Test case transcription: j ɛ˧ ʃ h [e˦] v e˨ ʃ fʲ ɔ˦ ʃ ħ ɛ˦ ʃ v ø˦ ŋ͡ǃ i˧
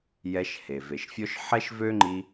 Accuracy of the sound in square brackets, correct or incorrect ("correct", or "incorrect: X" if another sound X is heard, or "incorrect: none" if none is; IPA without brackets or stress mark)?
incorrect: e˨